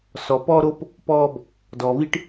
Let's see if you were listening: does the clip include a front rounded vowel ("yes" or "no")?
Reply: no